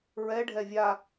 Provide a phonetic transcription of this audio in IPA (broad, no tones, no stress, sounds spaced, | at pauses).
ɹ ɛ ɖʱ ɛ vʲ a